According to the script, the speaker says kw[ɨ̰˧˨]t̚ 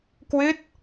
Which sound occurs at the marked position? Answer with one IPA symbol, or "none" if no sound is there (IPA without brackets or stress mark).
ɨ˦˥